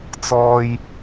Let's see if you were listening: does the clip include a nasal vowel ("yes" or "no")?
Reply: no